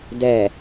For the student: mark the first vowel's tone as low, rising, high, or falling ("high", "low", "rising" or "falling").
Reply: low